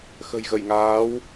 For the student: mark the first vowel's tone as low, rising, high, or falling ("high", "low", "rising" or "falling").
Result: low